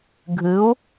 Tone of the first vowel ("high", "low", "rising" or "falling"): rising